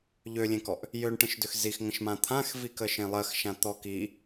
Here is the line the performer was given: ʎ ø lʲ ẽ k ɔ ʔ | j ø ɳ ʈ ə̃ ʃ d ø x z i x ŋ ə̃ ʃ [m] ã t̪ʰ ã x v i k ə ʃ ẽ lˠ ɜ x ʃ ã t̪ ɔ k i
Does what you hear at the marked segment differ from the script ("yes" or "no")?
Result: no